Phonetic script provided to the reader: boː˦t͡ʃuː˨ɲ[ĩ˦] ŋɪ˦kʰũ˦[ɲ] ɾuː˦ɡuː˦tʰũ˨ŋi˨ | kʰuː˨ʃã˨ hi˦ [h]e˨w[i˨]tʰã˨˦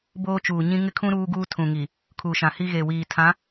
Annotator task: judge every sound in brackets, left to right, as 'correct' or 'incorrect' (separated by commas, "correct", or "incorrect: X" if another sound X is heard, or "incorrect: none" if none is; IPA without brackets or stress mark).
correct, incorrect: none, incorrect: ɣ, incorrect: iː˨